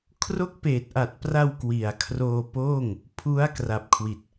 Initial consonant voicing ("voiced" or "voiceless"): voiceless